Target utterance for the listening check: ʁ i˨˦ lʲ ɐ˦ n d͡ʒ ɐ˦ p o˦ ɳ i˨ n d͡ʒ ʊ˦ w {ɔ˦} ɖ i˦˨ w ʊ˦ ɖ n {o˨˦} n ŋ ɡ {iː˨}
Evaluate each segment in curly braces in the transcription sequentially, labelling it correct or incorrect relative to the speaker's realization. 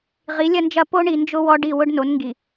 correct, correct, incorrect

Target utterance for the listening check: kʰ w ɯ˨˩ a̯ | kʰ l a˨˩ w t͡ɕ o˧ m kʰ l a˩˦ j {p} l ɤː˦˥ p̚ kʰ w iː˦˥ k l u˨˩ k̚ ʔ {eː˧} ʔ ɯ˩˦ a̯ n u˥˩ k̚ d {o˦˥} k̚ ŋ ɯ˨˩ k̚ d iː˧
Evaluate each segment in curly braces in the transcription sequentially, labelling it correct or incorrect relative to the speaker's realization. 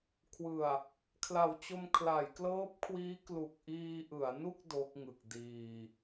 incorrect, incorrect, correct

